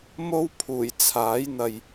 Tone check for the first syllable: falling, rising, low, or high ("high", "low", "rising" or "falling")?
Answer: high